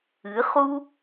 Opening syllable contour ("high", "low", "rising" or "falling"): rising